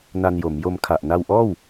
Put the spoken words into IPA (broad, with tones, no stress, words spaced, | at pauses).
na˧njo˩˦mjo˧mkʰa˨˩ʔ na˧wʔɔː˥˩w